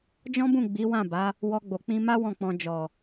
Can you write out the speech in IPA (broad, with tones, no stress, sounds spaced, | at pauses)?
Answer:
d͡ʒ ɔ̃˦ b ũ˦˨ ɡ͡b i˨˦ w ã˦˨ b a˨˦ | w ɔ˧ ɡ͡b o˨ k͡p ĩ˧ m a˦ w ɔ̃˦˨ k͡p ɔ̃˧ d͡ʒ ɔ˨